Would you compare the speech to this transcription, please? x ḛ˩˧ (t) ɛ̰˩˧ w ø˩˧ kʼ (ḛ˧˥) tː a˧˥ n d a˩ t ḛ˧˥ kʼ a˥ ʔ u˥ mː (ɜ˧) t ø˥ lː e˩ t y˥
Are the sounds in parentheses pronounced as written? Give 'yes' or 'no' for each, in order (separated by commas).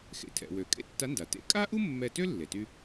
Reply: no, yes, no